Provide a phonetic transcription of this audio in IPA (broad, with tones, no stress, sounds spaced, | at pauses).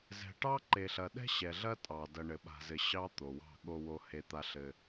z ɛ̤˨ ʈ ɑ˦ ǃ e˨ ɬ ɐ˨ ɗ ɛ̤˦ ɕ ɛ˨ ɮ ɐ˦ tʼ ɑ˨ d ɐ˨ ɳ ɘ˨ ɓ a̤˨ z ɘ˨ ɕ ɑ˦ t̪ o˨ w ɑ̤˦˨ ɠ o˨ w o˨ h e˦ t̪ a˦ ɬ ɘ˦